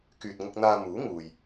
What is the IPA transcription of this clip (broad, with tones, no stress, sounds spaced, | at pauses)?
k yː˨ t̚ ŋ ʊ˧ k̚ n̪ aː˧ m uː˨˥ ŋ uː˨ j